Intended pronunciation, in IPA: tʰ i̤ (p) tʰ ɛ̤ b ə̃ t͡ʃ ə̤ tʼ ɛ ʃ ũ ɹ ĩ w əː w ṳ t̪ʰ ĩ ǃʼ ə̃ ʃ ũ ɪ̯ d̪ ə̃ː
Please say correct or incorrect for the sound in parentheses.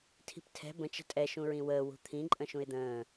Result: correct